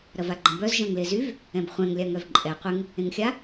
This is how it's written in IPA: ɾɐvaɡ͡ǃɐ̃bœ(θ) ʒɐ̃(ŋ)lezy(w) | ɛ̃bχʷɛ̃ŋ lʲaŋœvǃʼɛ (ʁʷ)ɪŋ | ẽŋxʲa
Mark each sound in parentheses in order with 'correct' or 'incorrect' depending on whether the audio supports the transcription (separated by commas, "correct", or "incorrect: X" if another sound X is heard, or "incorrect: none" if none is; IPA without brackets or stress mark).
incorrect: z, correct, incorrect: v, incorrect: qʷ